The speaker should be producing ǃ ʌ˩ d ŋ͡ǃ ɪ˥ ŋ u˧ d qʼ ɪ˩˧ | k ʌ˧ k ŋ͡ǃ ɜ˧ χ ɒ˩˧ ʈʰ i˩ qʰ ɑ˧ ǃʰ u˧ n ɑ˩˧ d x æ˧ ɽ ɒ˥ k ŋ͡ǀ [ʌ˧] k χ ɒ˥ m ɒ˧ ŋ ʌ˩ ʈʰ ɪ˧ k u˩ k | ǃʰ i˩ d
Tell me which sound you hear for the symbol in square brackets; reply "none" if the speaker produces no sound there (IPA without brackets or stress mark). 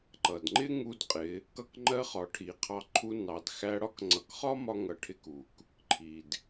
ʌ˩˧